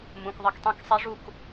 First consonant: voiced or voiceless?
voiced